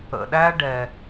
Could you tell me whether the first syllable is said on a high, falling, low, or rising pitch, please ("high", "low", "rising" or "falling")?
low